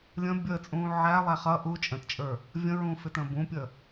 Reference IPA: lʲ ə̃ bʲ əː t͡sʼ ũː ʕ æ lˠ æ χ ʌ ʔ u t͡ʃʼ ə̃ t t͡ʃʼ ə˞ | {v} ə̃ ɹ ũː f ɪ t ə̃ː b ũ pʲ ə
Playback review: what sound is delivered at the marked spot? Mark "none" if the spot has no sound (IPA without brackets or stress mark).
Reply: vʲ